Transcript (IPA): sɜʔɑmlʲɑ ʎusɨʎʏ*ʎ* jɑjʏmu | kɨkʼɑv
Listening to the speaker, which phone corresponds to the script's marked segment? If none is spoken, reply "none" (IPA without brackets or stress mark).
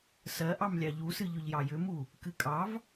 ʎ